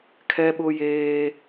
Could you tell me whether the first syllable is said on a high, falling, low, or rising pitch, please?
high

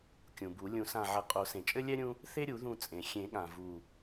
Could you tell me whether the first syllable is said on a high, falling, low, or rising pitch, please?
low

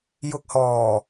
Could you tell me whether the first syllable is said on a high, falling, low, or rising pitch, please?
low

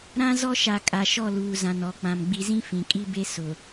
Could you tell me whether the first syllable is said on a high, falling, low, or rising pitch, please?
high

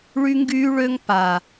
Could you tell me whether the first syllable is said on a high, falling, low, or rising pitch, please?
high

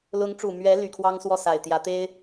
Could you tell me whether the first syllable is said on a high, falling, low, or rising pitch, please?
rising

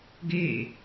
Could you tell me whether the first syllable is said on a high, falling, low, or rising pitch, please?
falling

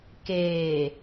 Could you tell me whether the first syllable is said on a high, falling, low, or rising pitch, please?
low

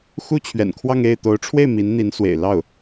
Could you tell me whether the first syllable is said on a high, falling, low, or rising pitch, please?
high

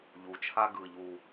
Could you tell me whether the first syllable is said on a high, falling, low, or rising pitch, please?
low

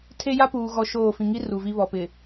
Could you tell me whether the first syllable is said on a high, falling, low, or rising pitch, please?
high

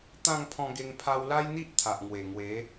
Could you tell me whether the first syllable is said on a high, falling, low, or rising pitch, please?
falling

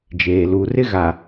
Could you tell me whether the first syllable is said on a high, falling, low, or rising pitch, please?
low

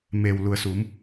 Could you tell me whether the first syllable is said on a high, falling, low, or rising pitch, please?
low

